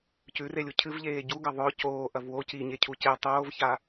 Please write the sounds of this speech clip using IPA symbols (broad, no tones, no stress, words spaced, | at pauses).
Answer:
cʉrelʲu cʰɨvʎeː ɟuɡɐ ðˤɵ coːʔɐv wo ciɲecʰu ce tˤoːvça